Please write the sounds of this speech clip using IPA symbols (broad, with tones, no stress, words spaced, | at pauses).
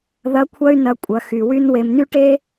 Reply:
ðɐ˧˥kʷʰɐ˥y̯nɐ˧ kʷʼɐ˩˧xy˩ wy˥nwe˧m ny˥ʈe˥